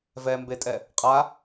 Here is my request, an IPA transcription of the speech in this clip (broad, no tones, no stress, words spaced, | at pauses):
vɛmbetʼɛ | qʼa